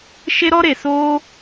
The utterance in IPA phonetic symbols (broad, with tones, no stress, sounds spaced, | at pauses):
ʃ e˦ ɾ ɔ˦ ɾ e˨ s oː˦